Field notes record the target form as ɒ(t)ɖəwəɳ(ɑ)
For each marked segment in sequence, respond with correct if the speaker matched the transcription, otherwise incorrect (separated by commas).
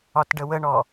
correct, incorrect